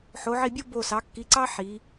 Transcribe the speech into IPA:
ħ o˩˧ ʕ i˧˩ bʲ o˥ b o˧˩ s ɑ˩˧ kː i˩˧ ǀ ɑ˥ ħ i˩˧

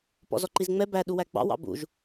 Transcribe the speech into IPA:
p ɔ̰ z ɔ ǃ i z ŋ͡m ɛ b æ ɗ u w æ ɡ͡b ɑ̰ w ɑ̰ b ṵ ʒ

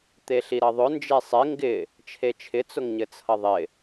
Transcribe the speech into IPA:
t̪ e ɬ i ɾ ʌ ðˤ ʊ n d͡ʒ e sˤ ɪ ŋ ɡ ɪ | t͡ʃʰ e t͡ʃʰ ɪ t͡s ʊ ŋ ɲ ɘ t͡sʰ ʌ ðˤ ɪ

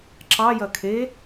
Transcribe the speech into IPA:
ǁ ɑ j ɐ kʰ e

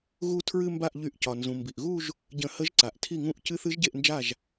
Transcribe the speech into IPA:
ɣ u˥˧ tʰ ɹ ɨ˥˧ m b a˥˩ ʔ ʎ y˧˩˧ ʔ c ɒ˩ n z ũ˩ m b i˩ ʔ ɣ u˥˧ ʒ | ɟ ə̃˧˩˧ h ə˧˥ ʒ ǀ a˩ ʔ tʰ i˥˩ ŋ ũ˥˩ ʔ c ɨ˧˥ θ ɨ˧˥ ʒ ɟ e˥˩ ʔ n d͡ʒ a˥˩ ʒ

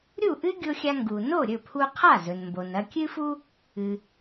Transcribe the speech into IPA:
ɾʲ u˥˩ ʔ ɨ˥ ɡʲ o˧ xʲ a˧ ŋ ɡ u˩ n o˥˩ ɾʲ ɵ˥˩ pʰ u˧ qʰ a˥˩ z ɵ˩ n m b o˩ n ɐ˧ kʲ ɨ˥ f u˥ | ɨ˩

